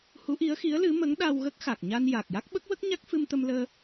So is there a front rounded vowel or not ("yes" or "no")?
no